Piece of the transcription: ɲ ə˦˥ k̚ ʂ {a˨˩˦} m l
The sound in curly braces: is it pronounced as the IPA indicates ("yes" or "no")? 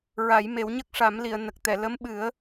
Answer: yes